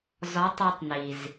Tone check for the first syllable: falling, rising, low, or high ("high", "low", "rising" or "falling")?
rising